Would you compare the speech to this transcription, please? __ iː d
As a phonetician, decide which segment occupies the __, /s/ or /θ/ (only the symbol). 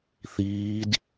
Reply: θ